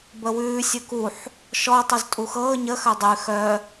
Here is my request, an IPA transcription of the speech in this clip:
b ə w ʉː sʲ ʊ k u ħ | ʃ ɔ tˤ u z tʼ u x ɤː ɲ ə x œ dˤ ʉ x œ

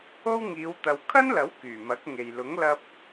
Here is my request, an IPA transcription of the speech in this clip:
o˥ w ŋ iː˨˧ w t̪ ɐ˨˧ w kʰ ɐ˥ n l ɐ˨˥ w k yː˨˩ m ɐ˨˥ k̚ ŋ e˨ j l ʊ˨˥ ŋ l ɐ˧ p̚

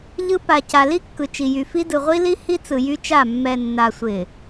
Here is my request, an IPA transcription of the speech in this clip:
ʎ ɯ˦ p a˨ c a˨ l i˦ kː ɯ˨ t͡ʃ i˨ j y˨ f i˦ d ɯ˨ ʁʷ i˦ l i˦ h i˦ t͡s ɯ˨ j y˦ t͡ʃ a˦˨ mː ɛ˨ nː a˨ sʷ ɪ˨

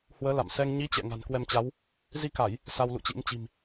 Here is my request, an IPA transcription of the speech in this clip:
h w əː˨˦ l a̰˧˨ m s ɛ˧ ŋ ɲ i˨˦ t͡ɕ ɛ̰˧˨ ŋ a̤˨˩ n k w ɛ˧ m t͡ɕ a˨˦ w | z i˧ k a˧˩˨ j | s a˧ w l ṵ˧˨ t͡ɕ ḭ˧˥ m t͡ɕ i̤˨˩ m

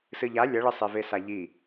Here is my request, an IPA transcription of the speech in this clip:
s ɨ ʎ a lʲ ɐ ɭ ɘ sˤ e v e s a ʎ i

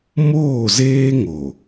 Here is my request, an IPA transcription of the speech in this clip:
m oː˦˨ z eː˦ ŋ o˨

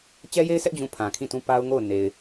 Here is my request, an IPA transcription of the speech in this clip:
t͡ɕ ɛ˦ j e˦ ɪ̯ s ɛ˦ ʔ d͡ʑ ũ˦˨ pʰ ã˨ kʰ ĩ˦˨ t ũ˦ p a˦ ʊ̯ ŋ o˦˨ ʊ̯ n e˨ ɪ̯

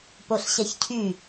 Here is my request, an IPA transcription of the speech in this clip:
p o ɬ ɕ ɛ ç cʰ y

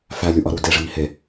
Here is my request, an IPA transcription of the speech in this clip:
f æ lʲ u ʔ ɒ ɾ u d e ʐ i ŋ i h e

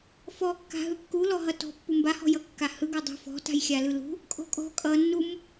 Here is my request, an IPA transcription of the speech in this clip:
f ɔ kː a̤ ɦ ɯ kː u l ɔ ɦ ʌ t ɔ̤ pː u m b a h ɔ̤ j ʌ kː a h ɯ ɡ ɔ dˤ ṳ f ɔ̤ t a̤ j xʲ a l ɯ l ṳ | kʼ ɔ̤ kʼ ɔ̤ kʼ ʌ nː u m

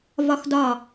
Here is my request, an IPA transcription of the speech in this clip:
v ɒ˧ x d ɒ˧˩

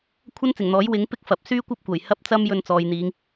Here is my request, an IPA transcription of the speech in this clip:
kʷʰ ɐ˥ n t͡s ɪ˨˩ ŋ n̪ ɔː˨˥ j w ɪ˨˥ ŋ p ɪ˥ k̚ f ɐ˨ p̚ s yː˥ kʷ ɐ˥ p̚ kʷ ɐ˨˩ j h ɐ˥ p̚ t͡s ɐ˥ m j ɵ˧ n t͡s ɔː˨ j n̪ iː˨˧ ŋ

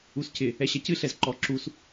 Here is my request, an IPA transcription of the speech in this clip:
u s c ɪ | ɛ ɕ ɛ c ɨ ɬ ɛ z ǃ ɔ ǁ u s

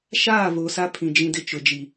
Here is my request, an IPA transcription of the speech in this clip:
ʃ aː˦˨ v o˨ s a˦ pʰ ĩ˨ d͡ʒ ĩ˦ d ɪ˦ t͡ʃ ʊ˨ d͡ʒ i˨

